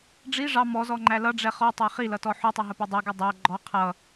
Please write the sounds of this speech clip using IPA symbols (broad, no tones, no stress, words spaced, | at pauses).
ɖ͡ʐi ʐɑ mɔzɔŋ͡ǃæ lʌɖ͡ʐɛ χɔtˤɑ χilʌtɔ ħʊtˤɪɦəpɪ dˤʌɡu dˤæ ɡ͡ǃɔ qʰʌ